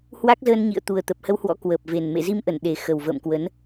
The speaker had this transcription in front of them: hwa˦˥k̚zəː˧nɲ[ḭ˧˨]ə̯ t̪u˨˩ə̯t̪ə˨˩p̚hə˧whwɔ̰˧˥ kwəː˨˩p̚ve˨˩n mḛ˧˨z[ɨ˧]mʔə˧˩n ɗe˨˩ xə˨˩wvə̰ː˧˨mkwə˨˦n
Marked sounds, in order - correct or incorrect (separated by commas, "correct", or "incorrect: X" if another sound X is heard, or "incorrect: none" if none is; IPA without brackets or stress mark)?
correct, incorrect: i˧